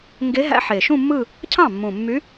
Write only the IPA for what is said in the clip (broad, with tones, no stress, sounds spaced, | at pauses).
ŋ ɡ e˧˥ ɦ æ̰˧˥ ħ e˨˩ ʃ ũ˥˧ mː ɯ˥˧ | cʰ ɑ̃˥˩ mː ũ˨˩ mː y˧˥